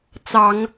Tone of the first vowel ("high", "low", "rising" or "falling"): low